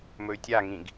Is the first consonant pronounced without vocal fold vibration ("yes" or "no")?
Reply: no